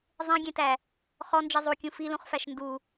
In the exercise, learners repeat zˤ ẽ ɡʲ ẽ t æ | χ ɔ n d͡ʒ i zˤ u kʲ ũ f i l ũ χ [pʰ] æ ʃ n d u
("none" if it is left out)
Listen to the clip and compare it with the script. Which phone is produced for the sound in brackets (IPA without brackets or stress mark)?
f